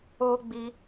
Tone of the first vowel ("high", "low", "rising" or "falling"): high